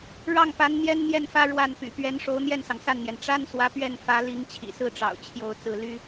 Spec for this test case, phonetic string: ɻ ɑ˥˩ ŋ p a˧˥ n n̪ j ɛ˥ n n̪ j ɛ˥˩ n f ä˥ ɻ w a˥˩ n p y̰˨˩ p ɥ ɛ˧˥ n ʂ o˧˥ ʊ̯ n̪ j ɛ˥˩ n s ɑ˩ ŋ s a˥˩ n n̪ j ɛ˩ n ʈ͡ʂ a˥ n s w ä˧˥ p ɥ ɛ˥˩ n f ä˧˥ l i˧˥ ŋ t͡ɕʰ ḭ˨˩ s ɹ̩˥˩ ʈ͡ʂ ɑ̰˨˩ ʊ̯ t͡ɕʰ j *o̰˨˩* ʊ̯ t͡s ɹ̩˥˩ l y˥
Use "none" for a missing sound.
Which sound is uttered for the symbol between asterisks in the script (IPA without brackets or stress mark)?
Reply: o˥˧